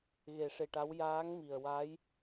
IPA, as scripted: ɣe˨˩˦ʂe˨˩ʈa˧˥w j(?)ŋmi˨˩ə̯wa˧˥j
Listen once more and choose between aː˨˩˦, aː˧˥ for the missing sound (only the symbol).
aː˧˥